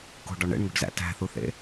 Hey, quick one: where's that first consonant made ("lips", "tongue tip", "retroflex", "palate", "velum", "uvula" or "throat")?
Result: velum